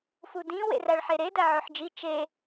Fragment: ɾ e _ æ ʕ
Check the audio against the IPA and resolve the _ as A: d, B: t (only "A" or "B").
A